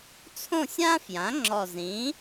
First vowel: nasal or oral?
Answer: nasal